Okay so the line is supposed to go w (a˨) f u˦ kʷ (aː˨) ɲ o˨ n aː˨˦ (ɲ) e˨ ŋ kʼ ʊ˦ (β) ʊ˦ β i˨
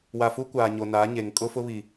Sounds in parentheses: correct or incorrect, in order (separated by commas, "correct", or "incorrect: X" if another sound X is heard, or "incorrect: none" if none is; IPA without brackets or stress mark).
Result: correct, correct, correct, incorrect: f